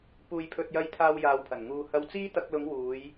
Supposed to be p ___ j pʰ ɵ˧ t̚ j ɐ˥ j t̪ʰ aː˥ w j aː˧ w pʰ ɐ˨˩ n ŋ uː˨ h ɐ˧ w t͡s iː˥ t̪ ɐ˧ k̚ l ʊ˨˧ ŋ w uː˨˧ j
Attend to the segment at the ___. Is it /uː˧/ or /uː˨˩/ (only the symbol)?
uː˧